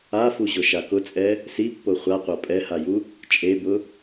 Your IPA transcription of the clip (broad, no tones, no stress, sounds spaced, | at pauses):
a f u ʑ ʊ ʃ a k ʊ t͡sʼ ɛ | s i pː o χʷ a qʷ a pʼ ɛ h a j u | t͡ʃʼ e b ʊ